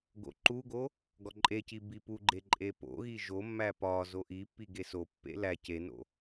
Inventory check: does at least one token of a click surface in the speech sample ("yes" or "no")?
yes